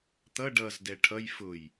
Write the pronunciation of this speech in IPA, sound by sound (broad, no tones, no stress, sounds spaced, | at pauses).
t̪ ʌ ɖ ʌ z d ɛ ʈʰ ʌ j f ʊ j